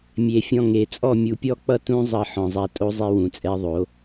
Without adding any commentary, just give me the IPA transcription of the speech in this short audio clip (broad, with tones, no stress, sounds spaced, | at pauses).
mʲ e˨ fʲ ɔ̃˧ ŋ e˨ t͡sʼ ɔ˦˨ mʲ u˨ pʲ ɔ˦˨ k͡p ʌ˦ t ũ˦ zˤ ʌ˧ ħ ɔ̃˨ zˤ a˧ tʼ o˦ zˤ e˦ w ũ˨ t͡sʼ ɛ˦ ðˤ o˨˦